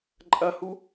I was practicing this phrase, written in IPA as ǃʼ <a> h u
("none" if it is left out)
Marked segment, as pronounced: ɐ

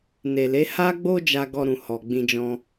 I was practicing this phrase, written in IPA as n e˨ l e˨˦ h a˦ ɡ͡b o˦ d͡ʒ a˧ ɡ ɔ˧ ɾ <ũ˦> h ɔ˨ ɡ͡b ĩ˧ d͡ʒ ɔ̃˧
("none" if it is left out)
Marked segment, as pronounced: ũ˨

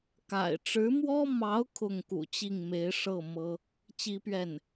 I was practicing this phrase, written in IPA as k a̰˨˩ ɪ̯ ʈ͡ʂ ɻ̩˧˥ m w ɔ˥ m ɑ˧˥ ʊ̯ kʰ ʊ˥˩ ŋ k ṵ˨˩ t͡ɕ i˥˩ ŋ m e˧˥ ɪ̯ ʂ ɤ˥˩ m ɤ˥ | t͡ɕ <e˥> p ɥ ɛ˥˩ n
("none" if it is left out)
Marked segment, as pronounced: i˥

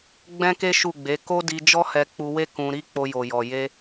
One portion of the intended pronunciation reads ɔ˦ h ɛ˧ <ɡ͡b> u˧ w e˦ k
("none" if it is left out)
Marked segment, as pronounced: k͡p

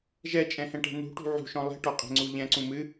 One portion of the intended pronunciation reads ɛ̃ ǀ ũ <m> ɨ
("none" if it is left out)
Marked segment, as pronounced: m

